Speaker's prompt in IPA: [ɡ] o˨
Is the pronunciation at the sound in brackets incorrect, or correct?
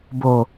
incorrect